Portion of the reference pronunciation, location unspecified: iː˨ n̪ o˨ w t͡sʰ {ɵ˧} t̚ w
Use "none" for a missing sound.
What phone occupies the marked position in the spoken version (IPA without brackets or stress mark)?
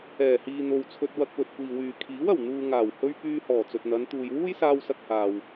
ɵ˧